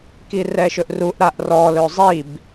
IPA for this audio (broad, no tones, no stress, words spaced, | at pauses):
kirɛʃɵʔruʔ ɾaʔrɔ lɵzˤib